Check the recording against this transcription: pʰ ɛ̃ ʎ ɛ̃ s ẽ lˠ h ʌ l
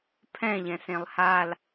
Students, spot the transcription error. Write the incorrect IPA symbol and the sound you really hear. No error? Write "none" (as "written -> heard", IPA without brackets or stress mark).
ʌ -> a